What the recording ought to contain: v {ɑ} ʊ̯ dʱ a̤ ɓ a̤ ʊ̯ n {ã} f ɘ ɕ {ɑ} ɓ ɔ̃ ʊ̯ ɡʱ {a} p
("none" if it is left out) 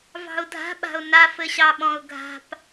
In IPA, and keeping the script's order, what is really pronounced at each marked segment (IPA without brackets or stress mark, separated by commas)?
ɑ̤, a, ɑ, a̤